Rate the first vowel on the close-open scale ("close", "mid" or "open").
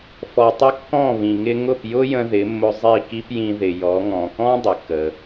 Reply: mid